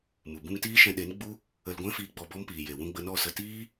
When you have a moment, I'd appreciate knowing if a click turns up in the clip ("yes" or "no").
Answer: no